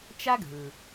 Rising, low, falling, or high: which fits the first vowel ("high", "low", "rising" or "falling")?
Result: high